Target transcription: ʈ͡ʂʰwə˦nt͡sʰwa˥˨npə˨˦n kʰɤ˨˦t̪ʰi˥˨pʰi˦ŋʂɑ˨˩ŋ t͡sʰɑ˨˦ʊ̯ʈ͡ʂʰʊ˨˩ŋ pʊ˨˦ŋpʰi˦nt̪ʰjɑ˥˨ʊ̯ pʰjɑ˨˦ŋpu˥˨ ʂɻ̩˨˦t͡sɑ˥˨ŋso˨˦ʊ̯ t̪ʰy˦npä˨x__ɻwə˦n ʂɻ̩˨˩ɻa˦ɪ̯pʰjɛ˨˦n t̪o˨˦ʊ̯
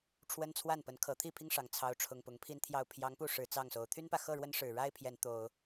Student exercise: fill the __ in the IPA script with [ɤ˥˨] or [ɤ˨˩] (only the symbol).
ɤ˥˨